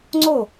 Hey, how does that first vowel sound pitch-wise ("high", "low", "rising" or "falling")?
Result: falling